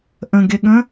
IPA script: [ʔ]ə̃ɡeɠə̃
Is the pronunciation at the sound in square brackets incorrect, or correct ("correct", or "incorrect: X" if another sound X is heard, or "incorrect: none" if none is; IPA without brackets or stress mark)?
correct